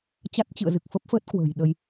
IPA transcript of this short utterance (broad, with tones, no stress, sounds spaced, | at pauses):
t͡ɕ a˦˥ t̚ t͡ɕ ɨ̰˧˨ ə̯ z ɨ˨˩ k̚ f ə˦˥ p̚ f əː˦˥ t̚ k w ə̤ː˨˩ j ɗ ə˧ j